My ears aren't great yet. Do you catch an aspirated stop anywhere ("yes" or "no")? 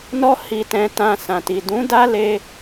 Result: no